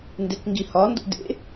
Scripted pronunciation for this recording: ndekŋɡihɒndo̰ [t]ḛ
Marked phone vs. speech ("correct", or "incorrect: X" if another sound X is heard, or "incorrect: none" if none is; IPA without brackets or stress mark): incorrect: d